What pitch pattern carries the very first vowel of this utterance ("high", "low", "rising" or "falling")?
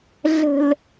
low